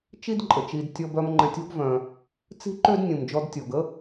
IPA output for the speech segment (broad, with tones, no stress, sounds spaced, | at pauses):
t͡ʃ i˦ d ǃʼ ə˩ t͡ʃ i˨ d tʲ ɔ˨ b œ˨ m ŋ͡ǃ ɛ̃˨ tʲ ɔ̤˦ ɡ v œ̃˩ | t͡s i̤˥ ǃ ø˥ d nʲ ũ˩ m d͡ʒ ɔ˨ d tʲ ɔ˩ ɡ ə˦